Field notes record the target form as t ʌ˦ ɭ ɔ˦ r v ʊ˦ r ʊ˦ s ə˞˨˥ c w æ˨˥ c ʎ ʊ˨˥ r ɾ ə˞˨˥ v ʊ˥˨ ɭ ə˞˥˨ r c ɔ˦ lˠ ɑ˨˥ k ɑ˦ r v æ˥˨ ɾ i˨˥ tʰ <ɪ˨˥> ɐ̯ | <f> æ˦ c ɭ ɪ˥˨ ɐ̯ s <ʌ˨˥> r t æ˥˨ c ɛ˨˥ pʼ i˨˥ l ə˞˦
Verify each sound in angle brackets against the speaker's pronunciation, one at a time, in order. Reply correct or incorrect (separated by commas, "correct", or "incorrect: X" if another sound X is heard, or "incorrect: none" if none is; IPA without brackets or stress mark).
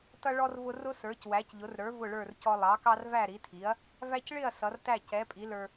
incorrect: i˨˥, incorrect: v, correct